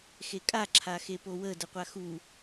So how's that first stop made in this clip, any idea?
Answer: ejective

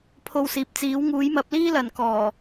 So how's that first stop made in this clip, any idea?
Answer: aspirated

